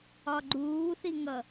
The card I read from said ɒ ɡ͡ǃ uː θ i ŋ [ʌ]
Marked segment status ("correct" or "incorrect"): correct